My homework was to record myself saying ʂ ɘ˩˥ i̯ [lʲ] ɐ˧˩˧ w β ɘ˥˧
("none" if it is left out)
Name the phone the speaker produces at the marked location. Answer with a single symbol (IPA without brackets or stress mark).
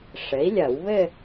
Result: lʲ